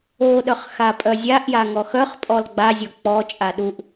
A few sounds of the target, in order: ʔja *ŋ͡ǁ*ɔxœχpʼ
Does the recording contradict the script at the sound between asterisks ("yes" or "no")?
yes